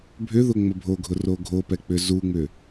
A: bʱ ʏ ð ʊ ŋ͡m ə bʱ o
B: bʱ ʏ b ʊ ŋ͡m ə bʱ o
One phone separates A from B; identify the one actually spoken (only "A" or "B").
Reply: A